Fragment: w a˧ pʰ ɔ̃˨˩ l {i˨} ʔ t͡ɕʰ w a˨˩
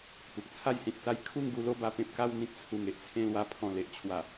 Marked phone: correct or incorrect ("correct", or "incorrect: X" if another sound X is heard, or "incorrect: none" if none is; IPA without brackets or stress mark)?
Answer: incorrect: e˨